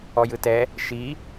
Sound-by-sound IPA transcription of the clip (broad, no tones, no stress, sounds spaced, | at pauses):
ɔ j ɯ t ɛ | ʃ i